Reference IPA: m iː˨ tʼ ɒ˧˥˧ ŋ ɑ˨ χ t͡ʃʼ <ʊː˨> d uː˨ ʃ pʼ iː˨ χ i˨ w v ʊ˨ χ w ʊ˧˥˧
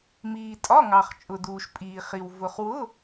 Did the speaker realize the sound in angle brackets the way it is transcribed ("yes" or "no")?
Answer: no